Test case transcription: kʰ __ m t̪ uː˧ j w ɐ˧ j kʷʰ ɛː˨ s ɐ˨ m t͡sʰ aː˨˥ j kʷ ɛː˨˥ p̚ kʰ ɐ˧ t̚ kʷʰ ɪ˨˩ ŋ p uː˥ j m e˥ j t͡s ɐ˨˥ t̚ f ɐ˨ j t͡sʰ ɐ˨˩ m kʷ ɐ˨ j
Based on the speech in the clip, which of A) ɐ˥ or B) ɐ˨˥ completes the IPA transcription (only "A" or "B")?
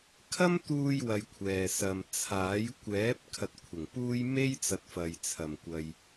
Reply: A